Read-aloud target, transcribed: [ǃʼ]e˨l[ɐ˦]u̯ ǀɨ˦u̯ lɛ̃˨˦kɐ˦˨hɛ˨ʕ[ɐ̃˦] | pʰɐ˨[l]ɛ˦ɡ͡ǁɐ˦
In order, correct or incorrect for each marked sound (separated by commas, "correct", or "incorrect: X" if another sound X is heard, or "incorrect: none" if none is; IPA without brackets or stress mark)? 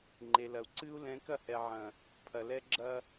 incorrect: ŋ͡ǃ, incorrect: ɐ˨, incorrect: ɐ̃˨, correct